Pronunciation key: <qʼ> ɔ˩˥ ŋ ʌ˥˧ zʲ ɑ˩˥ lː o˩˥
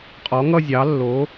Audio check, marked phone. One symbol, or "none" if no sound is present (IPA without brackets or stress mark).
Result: qʼ